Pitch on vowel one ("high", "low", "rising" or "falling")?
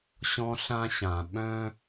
high